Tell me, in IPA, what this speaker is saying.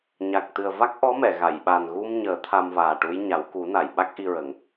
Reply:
ɲa˨˩k̚t̪ɨ˨˩ə̯va˦˥k̚ ʔɔ˧˥mɛ˨˩˨ɣa˨˩˨jɓa˨˩n ɣu˧mɲəː˨˩˦ t̪ʰa˧mvaː˨˩ʈu˧˥jɲa˨˩˦w ku˨˩˦na˨˩˨j ɓa˦˥k̚ʔi˧ɹə˨˩˦ŋ

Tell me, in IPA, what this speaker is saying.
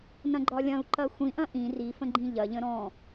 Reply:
nɐ̃ɡ͡ǃɒlʲɐ̃u̯ ǃɐxʷĩʔɐ̃ ʔĩ rifə̃ɡ͡ǃĩ ʎɐʎə̃ ɾɔ̃

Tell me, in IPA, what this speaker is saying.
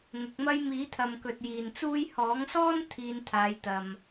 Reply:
ŋʊ˨˥k̚mɐ˥j miː˨˥t̪ʰɐ˨m kɵ˨t̚ jiː˨nt͡suː˥j hɔː˨˥ŋsɔː˥n t̪ʰiː˧nt̪ʰaː˨˧jt̪ɐ˨m

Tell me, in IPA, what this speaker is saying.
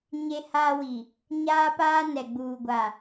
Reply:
ɲe˦haː˦wi˨ | ɲaː˦paː˦ nɛ˨ɡ͡buː˨ɡʷa˨

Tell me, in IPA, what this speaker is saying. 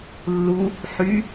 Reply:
lːu | ħy

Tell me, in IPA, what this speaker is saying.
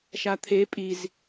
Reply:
ʃat̪ʰe pʼiz

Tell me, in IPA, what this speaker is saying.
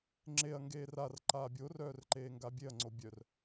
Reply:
ŋ͡ǁeɐ̯ ŋɡeːrar ǃaːbʲo rœːrǃeːŋɡabʲeɐ̯ ŋ͡ǀobʲœr

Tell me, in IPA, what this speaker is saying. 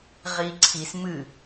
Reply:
ʁiǀʰis mɨ

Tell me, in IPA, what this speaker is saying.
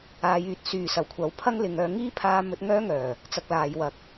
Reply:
aː˨˧jyː˨˥t̚ syː˨sɐ˨˩wkʷʰɐ˨˥w pʰɐ˥ŋlɪ˨˧ŋœː˧ ŋiː˥pʰaː˧ mɵ˧t̚ŋœː˥ŋœː˨˩ | t͡sɐ˧k̚laː˨˧jwɐ˨k̚

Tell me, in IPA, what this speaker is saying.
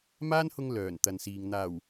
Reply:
maː˥nhʊ˧ŋ lœː˨˩nt̪ɐ˨nsiː˨ŋ n̪aː˨˩w

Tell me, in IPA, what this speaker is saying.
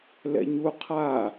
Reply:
lɛ̰ɲu qʰa

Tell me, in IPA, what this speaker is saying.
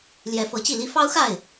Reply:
ljɛ˧˥fɤ˧˥t͡ɕi˥˩ li˧˥fɑ˥ʊ̯xa˥˩ɪ̯

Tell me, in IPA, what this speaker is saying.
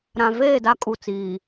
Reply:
ɾã˨veː˦˨ da˦kʼu˨t͡siː˨

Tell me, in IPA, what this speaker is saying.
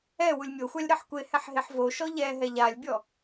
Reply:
ɛ wulʲmʲoxʷalʲ ɾɤħkʷehɛħ ɦeħvoʃɔ ʎɛɦɛ ʎalʲbʲɔ

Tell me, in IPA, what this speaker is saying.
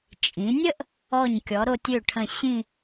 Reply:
t͡ʃʼĩ˩˧nʲə˥ʔ | ɔ˧˩ɲkʲɔ˩˧ɾo˧tʲø˧˩ ʈʰə̃˧˩ɕĩ˥˧

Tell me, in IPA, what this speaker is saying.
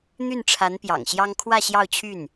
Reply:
n̪y˥˩nʈ͡ʂʰa˧˥n pjɑ̰˨˩ŋɕjɑ˥ŋ kʰwä˥˧ ɕjɑ˥˧ʊ̯t͡ɕʰy˥˩n

